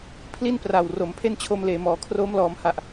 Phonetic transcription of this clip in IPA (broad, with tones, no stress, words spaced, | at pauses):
pʰli˥˩n pra˨˩w ro˩˦mpʰe˥˩nt͡ɕʰo˧m leː˩˦mɔː˩˦ kʰroː˦˥mlɔː˩˦mha˨˩ʔ